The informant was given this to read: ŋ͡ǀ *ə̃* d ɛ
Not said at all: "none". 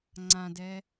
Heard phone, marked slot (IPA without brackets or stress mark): ã